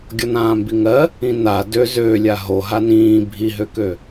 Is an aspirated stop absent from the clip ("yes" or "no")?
yes